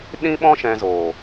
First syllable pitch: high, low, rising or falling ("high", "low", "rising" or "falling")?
high